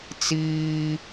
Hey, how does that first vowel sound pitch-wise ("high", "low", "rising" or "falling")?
high